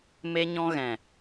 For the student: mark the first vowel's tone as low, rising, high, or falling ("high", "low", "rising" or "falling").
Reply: high